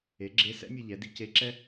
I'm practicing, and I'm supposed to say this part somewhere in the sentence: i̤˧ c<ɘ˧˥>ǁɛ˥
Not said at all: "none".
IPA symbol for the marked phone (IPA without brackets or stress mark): e˧˥